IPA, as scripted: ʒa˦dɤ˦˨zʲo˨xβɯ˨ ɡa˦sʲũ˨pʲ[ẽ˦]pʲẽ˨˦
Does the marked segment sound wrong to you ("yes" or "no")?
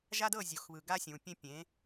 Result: no